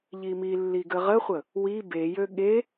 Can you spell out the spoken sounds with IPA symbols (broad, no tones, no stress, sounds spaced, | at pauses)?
ʎ i m i lː i ɡ ə ʁ ə χʷ ə | w i b e j ø ɠ e